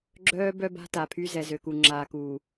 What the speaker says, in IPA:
ɡ͡ǁ œː˦ b œ˦ b a̤˦ t a˨ pʰ y˦ z ɛ˨ z ø˨ k u˨ ŋ͡ǁ aː˨ k uː˨

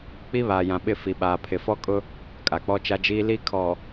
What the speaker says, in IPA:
k͡p i˦ β aː˨ j ã˨ ɓ ɪ˦˨ f i˨ ɓ aː˨ pʰ ɪ˨ f ɔ˦ kʼ ʊ˦ | kʼ a˨ k͡p ɔ˦ t͡ʃ a˦ d͡ʒ iː˦ l i˦ kʰ ɔ˨

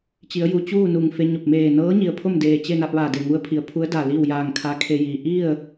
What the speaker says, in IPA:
t͡ɕ i˩˧ ə̯ j u˩ t͡ɕ uː˥˨ n u˧˩ ŋ f e˧ ɲ o˧˩ p̚ m eː˧˩ n ɤː˧˥ ɲ i˩ ə̯ pʰ o˥˨ m d eː˧˩ t͡ɕ e˥˨ n a˧ p̚ ʋ aː˧˩ d e˧˩ ŋ u˧ ə̯ pʰ i˩˧ ə̯ pʰ u˧˥ ə̯ d a˧˩ l iː˥˨ w j aː˧˩ ŋ kʰ a˧˥ kʰ e˧ j iː˩ ʔ i˥˨ ə̯

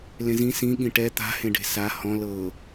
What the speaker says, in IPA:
l ẽ z ĩ s ĩ ɠ ĩ ʈ ɛ t̪ a̤ h ẽ ɖ e̤ s a h ɔ̃ l ɤː

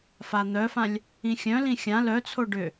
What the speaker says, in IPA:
f a n̪ œ f ã lʲ | ĩ xʲ œ̃ l ĩ xʲ ã l œ t͡sʰ o ɖ ʏ

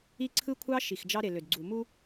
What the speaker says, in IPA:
i˦ ǀʰ ɯ˦ kʷʰ ɑ˦ ʃ i˨ x d͡ʒ ɑ˦ ɾ e˨ l ø˨ d ɡ͡ǀ u˨ m u˦

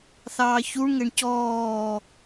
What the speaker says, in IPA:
θ ɑː ç u ɳ ŋ ɛ ɳ c ɔː

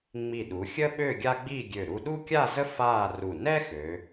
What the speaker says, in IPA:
ŋ͡m i˧˩ ɗ u˩˧ xʲ ə˥ ɓ ø˥˧ ɡʲ a˥ ɡ͡b i˥˧ ɡʲ ø˧˩ ɾ u˧ ɗ u˥ kʲ a˥˧ z ə˥ f aː˥˧ r u˧˩ n ɛ˥ x ø˩˧

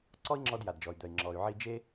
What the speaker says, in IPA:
ǀ ɔ˥ i̯ ŋ͡ǁ ɔ˧ d j a˩ d d͡ʒ ɔ˩ y̯ d̪ œ˩ i̯ ŋ͡ǁ ɔ˩ y̯ ʕ i˧ d͡ʒ e˥

